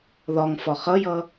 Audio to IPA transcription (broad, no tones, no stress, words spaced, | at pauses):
ðɒŋ fɒχʌjʌ